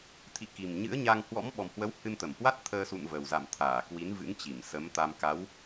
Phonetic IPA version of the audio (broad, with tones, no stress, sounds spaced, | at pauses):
t̪ʰ ḭ˧˨ k i˨˩ m ɲ ɨ̰˧˥ ə̯ ɲ a˧ ŋ h w ɔ̰˧˥ m ɓ ɔ˨˩ m h w ə˨˦ w h ɨ˧ n t̪ ə˧˩ m h w a˦˥ t̚ t̪ʰ əː˧ s ṵ˧˨ n v ə˨˩ w z a̰˧˨ m t̪ʰ aː˧˩ k w i˨˦ n v ɨ̰˧˥ ŋ t͡ɕ i˧˩ m s ə˨˦ m t̪ a˧ m k a˨˦ w